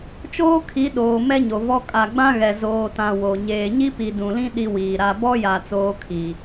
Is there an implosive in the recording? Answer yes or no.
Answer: yes